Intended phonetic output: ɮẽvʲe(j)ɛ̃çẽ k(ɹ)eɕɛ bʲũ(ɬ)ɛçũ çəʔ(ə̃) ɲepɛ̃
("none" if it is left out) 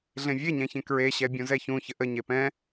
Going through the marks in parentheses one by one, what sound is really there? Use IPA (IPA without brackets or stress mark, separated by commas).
ɲ, ɹ, z, ə